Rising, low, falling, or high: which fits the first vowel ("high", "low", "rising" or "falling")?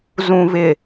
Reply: low